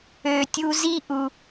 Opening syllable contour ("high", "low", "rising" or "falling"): low